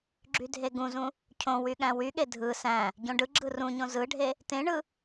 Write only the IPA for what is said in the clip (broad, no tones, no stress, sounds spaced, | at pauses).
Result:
ɡ͡ǁ y dʱ e ɡ ũ z ũ | cʰ õ w y ɠ æ̃ w y ɠ e dʱ ɯ s æ̃ | ɟ õ ɖ ɯ ɡ͡ǁ ɯ r ũ ɲ õ z ɯ ɖʱ e | t ẽ ɳ ɯ